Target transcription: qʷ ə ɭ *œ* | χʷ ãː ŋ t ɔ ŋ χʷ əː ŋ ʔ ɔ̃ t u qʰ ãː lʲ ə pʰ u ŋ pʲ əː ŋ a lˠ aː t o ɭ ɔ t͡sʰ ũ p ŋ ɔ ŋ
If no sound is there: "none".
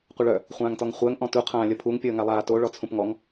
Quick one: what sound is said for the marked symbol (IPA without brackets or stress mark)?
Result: œ